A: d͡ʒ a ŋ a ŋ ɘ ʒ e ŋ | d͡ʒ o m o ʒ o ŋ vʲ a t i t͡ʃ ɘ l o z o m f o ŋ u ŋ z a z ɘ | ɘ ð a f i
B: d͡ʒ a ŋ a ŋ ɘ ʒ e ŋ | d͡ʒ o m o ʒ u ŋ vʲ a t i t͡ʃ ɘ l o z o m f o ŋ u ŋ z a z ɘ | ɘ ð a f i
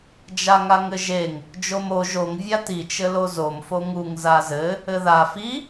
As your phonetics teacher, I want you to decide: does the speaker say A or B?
A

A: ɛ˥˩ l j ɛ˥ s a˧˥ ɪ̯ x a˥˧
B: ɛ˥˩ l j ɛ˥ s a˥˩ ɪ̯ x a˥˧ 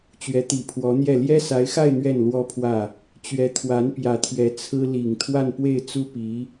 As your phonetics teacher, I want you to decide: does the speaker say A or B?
A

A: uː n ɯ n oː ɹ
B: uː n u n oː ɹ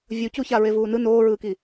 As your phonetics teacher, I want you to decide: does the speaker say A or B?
A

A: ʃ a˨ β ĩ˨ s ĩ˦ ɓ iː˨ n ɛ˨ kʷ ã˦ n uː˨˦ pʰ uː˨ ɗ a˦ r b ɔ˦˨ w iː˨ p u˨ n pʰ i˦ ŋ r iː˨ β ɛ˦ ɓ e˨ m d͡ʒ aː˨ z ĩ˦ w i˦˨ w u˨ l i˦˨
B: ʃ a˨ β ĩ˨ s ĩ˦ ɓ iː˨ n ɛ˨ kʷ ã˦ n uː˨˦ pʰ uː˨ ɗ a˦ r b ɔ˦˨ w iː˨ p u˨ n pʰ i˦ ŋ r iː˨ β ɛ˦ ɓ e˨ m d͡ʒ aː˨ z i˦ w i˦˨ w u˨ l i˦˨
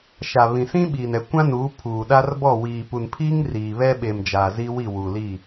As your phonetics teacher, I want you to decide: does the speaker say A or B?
B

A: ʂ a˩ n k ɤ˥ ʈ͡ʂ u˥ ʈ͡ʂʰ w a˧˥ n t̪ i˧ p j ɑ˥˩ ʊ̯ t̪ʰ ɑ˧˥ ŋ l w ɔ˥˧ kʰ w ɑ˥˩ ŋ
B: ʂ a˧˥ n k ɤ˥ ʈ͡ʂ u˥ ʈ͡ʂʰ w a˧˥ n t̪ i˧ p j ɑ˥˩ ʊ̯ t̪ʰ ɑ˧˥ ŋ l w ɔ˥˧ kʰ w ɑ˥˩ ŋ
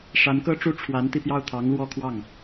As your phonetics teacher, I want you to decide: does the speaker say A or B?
B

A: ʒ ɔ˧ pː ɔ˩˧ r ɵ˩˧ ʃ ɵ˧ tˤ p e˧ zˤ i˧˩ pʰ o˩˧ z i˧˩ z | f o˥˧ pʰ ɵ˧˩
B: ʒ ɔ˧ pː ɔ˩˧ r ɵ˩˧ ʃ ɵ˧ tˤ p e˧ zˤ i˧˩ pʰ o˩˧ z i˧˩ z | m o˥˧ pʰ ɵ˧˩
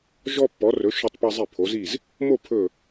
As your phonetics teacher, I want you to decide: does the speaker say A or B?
B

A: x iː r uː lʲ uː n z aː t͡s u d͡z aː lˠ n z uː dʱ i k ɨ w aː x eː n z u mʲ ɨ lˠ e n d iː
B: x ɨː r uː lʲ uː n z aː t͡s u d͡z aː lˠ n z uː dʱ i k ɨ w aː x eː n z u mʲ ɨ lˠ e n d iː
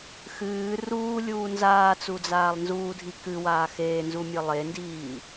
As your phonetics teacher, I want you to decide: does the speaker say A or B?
B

